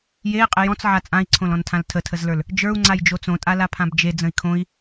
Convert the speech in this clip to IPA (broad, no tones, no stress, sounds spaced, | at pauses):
j e i̯ qʼ ɪ j ɔ̃ t͡s ʕ a t͡sʼ ã i̯ ǀʰ õ l ɔ̃ n tʰ ã l tʰ ə tʰ ə z l ə˞ l | d͡ʒ ə˞ u̯ ŋ͡ǀ a j d͡ʒ o t͡s õ tʼ a l a pʰ ã b d͡ʒ e d͡z ə̃ i̯ kʰ õ i̯